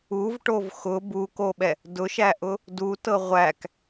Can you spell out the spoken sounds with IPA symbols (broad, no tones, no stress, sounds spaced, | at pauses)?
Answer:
u v ʈ o v x ʊ b u k o ɓ ɛ | d ʊ ʃ æ ʔ ʊ | d u t ɤ ʁʷ æ k